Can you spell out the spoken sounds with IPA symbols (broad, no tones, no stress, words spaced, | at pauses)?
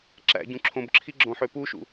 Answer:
ǁæ̰ɟũ ǁʰõbǁʰiɡ͡ǁõħø puʃṵ